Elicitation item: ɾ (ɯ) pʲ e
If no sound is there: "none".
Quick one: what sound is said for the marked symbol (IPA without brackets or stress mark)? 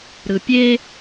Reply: ɯ